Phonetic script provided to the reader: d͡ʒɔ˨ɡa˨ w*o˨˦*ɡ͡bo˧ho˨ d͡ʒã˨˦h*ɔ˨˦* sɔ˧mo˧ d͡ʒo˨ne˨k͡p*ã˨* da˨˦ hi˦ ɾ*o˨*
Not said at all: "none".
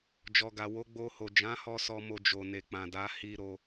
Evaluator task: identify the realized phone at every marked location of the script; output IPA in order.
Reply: o˨˦, ɔ˧, ã˨, o˧

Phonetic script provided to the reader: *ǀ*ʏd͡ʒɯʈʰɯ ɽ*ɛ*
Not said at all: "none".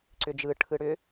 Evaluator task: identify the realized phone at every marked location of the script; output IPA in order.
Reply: ǀ, ʏ

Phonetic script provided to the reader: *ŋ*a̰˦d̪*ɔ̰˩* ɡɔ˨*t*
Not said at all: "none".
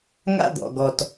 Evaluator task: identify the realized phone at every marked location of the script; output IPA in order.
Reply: ŋ, ɔ̰˩, t

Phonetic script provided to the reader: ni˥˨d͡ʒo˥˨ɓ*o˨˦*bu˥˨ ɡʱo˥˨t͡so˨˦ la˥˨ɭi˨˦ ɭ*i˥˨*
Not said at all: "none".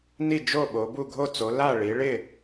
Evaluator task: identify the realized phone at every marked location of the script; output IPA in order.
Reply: o˨˦, ɪ˥˨

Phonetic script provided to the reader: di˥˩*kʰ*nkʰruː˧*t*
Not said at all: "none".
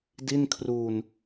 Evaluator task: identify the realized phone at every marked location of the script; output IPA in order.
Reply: none, n

